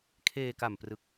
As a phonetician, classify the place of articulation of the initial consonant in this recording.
velar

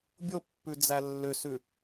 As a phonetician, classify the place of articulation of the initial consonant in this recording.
labial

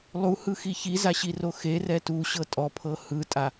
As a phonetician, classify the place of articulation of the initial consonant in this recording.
alveolar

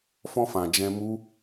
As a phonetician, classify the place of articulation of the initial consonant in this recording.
labial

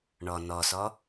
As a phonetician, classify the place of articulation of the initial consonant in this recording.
retroflex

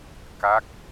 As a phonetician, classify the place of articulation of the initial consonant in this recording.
velar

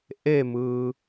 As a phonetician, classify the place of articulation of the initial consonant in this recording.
glottal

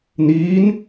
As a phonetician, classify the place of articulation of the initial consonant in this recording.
alveolar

